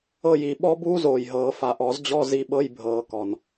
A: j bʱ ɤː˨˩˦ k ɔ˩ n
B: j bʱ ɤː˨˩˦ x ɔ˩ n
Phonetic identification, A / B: A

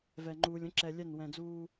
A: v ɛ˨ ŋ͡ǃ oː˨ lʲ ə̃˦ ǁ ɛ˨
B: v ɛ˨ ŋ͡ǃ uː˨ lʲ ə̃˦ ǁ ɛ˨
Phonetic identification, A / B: B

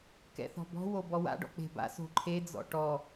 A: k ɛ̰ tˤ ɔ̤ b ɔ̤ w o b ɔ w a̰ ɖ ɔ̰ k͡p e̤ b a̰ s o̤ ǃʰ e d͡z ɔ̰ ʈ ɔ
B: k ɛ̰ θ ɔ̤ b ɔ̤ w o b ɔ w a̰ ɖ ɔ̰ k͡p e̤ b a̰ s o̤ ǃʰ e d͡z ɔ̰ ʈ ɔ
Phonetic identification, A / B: B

